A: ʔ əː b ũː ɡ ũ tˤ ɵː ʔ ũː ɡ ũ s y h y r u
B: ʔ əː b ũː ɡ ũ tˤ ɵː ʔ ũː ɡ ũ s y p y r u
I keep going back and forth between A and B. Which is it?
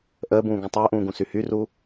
A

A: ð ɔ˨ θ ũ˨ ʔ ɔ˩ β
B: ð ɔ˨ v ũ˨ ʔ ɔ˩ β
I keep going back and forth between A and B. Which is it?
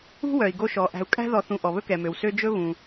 A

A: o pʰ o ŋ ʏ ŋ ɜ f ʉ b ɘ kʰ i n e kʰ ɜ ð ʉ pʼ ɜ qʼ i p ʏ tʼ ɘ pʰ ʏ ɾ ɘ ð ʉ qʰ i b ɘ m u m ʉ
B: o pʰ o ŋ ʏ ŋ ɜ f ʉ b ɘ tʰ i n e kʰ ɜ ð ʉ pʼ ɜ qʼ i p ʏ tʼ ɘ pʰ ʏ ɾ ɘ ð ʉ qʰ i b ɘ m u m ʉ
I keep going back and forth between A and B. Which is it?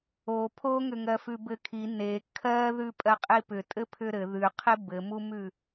A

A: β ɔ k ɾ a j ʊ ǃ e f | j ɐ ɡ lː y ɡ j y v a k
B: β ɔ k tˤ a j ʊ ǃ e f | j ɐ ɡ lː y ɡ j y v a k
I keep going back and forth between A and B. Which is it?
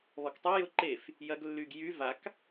B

